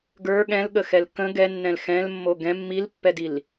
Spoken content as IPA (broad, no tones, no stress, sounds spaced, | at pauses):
ɡ ə˞ ɠ ɛ̃ l ɠ ə x ɛ l k ə̃ ɡ ɛ nː ɛ̃ l x ɛ̃ l mː o ɡ ɛ̃ mː i l pː ɛ d i l